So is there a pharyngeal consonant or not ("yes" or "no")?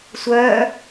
no